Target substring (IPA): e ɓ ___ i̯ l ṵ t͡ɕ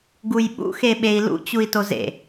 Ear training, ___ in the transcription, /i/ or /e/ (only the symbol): e